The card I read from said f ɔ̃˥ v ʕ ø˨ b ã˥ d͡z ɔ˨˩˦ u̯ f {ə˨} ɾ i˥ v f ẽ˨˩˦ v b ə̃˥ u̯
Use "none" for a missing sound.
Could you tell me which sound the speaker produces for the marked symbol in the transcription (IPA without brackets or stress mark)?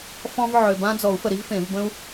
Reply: ə˨